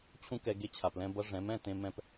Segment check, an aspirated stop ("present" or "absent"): present